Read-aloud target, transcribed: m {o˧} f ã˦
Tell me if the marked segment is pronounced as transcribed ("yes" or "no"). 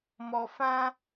no